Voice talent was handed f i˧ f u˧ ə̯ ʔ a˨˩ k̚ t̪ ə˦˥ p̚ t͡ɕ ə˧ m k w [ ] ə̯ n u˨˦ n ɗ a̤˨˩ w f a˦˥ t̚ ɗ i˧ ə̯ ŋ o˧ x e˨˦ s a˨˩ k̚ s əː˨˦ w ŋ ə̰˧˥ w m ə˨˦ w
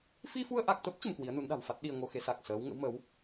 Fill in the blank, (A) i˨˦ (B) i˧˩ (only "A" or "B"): A